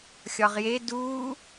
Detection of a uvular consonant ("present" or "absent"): present